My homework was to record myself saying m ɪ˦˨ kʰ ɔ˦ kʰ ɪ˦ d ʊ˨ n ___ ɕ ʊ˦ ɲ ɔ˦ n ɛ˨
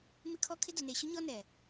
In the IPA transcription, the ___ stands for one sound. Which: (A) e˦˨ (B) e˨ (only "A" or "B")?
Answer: B